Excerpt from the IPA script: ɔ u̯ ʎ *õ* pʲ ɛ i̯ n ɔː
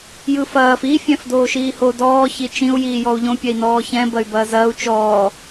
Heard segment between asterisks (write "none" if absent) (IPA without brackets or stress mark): õ